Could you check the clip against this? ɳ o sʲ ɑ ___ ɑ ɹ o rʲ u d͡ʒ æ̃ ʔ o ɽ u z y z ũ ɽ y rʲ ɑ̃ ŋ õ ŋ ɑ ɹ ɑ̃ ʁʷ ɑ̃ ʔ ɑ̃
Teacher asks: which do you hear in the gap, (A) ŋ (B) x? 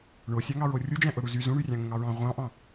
A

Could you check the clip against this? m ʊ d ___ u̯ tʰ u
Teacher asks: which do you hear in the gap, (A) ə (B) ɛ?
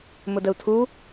A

